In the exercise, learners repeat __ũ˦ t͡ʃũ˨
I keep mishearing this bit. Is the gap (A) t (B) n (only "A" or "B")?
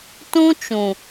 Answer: A